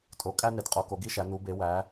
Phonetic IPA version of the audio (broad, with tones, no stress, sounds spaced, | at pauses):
tʼ o˩˧ kʼ æ˥ n e˩˧ d qʼ o˩˧ k o˩˧ ɡ i˥ ʃ æ˩˧ n u˩˧ b e˩˧ w æ˩˧